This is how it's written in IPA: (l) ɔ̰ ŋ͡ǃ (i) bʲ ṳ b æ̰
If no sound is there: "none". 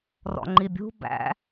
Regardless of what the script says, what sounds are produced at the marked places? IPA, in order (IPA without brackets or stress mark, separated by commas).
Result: r, i